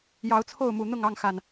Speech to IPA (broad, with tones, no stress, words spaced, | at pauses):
jɑ˨˦ʊ̯t͡sʰo˥˨ʊ̯mu˨˩ n̪ʊ˥˨ŋɑ˥˨ŋxa˨˩n